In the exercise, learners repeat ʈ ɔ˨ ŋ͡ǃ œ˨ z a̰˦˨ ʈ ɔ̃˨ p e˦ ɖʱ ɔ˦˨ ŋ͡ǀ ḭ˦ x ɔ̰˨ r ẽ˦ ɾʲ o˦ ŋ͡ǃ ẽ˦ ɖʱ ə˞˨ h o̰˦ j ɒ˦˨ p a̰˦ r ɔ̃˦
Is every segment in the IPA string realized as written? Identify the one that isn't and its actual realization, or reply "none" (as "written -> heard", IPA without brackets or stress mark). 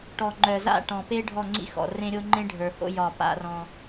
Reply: none